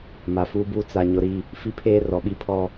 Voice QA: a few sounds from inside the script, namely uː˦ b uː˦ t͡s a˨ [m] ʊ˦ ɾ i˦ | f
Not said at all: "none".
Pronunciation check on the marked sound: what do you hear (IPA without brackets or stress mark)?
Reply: ɲ